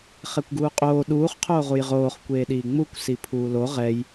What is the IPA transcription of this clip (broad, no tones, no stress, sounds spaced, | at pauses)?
χ ɛ kʷ ɡ uː qʼ oː ɗ uː χ qʰ oː ʁ u j ʁ oː χ kʷ eː ɗ iː ŋ͡m u kʷ s i pʰ uː l o ʁ ɛ j